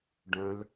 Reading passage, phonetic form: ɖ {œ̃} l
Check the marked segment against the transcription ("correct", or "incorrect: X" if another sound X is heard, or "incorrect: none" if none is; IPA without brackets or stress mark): correct